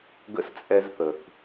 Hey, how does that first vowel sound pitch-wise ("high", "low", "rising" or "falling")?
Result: high